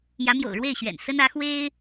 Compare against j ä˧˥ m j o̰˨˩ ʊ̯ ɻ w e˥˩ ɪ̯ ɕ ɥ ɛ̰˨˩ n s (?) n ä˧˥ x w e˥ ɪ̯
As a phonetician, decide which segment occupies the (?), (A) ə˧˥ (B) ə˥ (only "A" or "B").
B